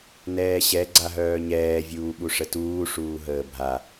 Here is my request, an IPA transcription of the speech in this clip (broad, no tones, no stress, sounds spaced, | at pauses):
n ɛː ɕ ɛ ɡ͡ǀ a ɦ œː ɲ ɛː vʲ uː ɓ u ʂ ə t uː ʂ uː ɦ əː bʱ a